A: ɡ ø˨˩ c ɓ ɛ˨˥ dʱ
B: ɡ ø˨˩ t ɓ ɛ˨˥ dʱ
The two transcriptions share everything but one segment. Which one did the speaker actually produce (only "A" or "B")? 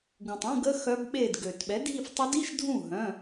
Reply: B